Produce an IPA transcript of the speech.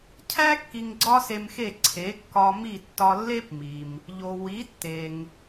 cʰ æ˥ kː i˧ ŋ ɡ͡ǀ ɒ˥ s e˧ m x e˥˩ ǀʰ e˩˥ kː ɒ˧ m i˥˩ tː ɒ˧ lː e˥ p m i˩ m | ʎ o˩ w i˩˥ tː e˩ ŋ

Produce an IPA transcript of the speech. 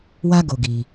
w a˦ ɡ o˧ ɡ i˧

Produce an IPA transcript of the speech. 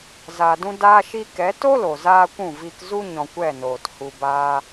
z a˧ d ũ˦ d aː˦ ʃ i˦ k ɛ˨˦ t o˦ l o˨ z aː˧ kʷ ũ˦˨ v i˧ k z u˦ ɲ ɔ̃˧ kʷ ɛ˦˨ n oː˨ t h u˧ b aː˦

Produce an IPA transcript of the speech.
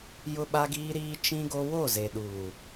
j ʊ˦ ɓ a˦ ɡ iː˦ ɾ iː˦ t͡ʃ ĩ˦ ɡ o˦ w o˦˨ z e˨ ɗ uː˨

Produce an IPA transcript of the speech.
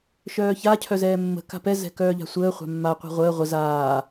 ʃ œː ç a cʰ œ z ɛː mː ə̤ k a̤ p ɛ z ɛ̤ k œː ʎ a̤ sʷ əː χʷ a̤ mː a qʷ ɛ̤ ʁʷ əː ʁʷ ə z aː

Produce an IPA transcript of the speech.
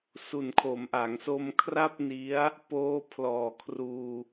s u˨˩ n kʰ o˩˦ m ʔ a˩˦ ŋ s o˧ m kʰ r a˥˩ p̚ n i˦˥ a̯ | p oː˦˥ pʰ l ɔː˨˩ kʰ r uː˧

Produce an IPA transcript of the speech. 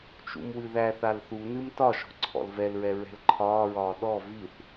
t͡ʃ ṵ m w ɨ ð æ θ a l θ u n ɨ m t ɒ ʃ ɔ̤ ǀʰ ɔ̰ l v ɛ l ɹ ɛ ɹ ɛ̤ l ǃʰ ɒː ɹ ɒː ɗ ɔ v i θ

